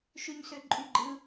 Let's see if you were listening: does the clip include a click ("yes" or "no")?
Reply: yes